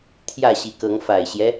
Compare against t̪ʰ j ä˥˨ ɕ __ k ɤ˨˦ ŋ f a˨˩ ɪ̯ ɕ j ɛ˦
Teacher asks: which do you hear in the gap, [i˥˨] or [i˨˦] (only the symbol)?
i˨˦